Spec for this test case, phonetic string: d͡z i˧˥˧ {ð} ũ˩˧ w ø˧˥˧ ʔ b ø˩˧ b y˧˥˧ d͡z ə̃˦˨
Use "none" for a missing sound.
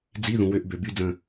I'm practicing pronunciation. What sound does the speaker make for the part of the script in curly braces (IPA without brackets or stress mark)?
ð